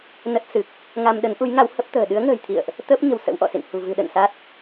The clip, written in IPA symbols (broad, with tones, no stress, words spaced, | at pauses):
nə˦˥t̚sɨ˨˩k̚ | ŋa˧mɗə˨˦nʔu˨˦jŋa˨˦w hə˦˥p̚t̪ə̤ː˨˩ ɗɨ˨˦ə̯ŋə̤ː˨˩jt̪ʰḭ˧˨ə̯ʔ | t̪əː˦˥p̚ɲə̤˨˩w sə̰˧˥wʔɔ̰˧˨sḭ˧˨n hṳ˨˩vɨ̤˨˩ɗə̰˧˨n sa˦˥t̚